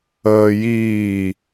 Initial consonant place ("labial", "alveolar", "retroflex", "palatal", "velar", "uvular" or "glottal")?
palatal